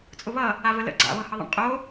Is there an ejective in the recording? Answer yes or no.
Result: yes